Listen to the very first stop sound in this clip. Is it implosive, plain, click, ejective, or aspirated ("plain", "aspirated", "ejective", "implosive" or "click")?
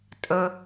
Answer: ejective